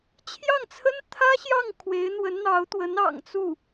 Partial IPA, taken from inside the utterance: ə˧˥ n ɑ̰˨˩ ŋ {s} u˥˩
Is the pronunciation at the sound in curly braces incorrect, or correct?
incorrect